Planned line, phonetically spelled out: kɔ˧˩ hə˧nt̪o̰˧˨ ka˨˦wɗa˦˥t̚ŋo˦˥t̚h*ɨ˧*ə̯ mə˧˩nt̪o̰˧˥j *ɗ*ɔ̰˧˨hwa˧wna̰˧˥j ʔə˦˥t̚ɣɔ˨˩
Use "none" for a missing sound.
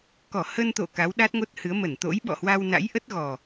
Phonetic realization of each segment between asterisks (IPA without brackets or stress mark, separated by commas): ɨ˨˦, ɓ